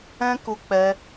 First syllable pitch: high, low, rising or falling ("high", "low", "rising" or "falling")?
high